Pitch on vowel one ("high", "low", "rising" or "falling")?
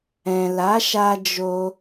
low